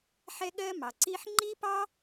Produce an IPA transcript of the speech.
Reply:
ħ ɛ˥ ɠ ɜ˥ m ɑ˩ ǀ i˥ ħ ŋ͡ǃ i˥ p ɑ˥

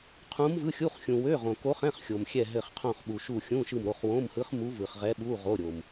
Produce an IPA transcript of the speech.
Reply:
qʰ ũ˧˥ m v ɯ˧˥˧ xʲ u˧˥˧ χ xʲ ũ˨ w ø˧˥˧ ʁ õ˨ k o˧˥ χ ɛ̃˧˥˧ χ xʲ o˨ m xʲ ɛ˦˨ ɦ ɘ˦˨ χ qʰ õ˦˨ χ ɓ u˨ ʃ u˦˨ xʲ ũ˧˥˧ ʃ ɯ˦˨ m ɾ o˧˥˧ χ w õ˧˥˧ m h ɯ˧˥ χ m u˧˥ v ɯ˨ χ ʁ ɛ˧˥ ɓ u˧˥˧ ʁ o˧˥˧ ɾʲ o˨ m

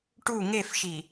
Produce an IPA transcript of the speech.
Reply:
ʈ u ŋ e f ʃ i

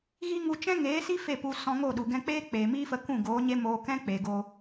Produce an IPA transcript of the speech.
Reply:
ɣ i˦ ŋ u˧ t͡ʃ ɛ̃˦ ŋ eː˨˦ s i˦ f e˦˨ p u˧ s ɔ̃˧ ŋ o˦˨ ɗ u˨ ɡ ɛ̃˧ k͡p eː˦ k͡p eː˨ m iː˦ f ə˧ k ũ˦˨ ɡ oː˨˦ ɲ e˦ m oː˧ k ɛ̃˦ k͡p e˨ ɡ o˧

